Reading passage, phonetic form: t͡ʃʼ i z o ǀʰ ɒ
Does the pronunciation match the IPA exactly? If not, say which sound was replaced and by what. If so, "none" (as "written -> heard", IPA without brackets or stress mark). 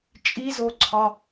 none